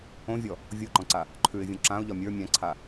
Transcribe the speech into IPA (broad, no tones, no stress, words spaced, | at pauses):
õvʲɔ | vʲoǃɔ̃ǀa | ǃʰʉɪ̯vʲõ ǁãʊ̯ʎɒ mʲə˞ mʲãǀʰa